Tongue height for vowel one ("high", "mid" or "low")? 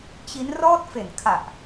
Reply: high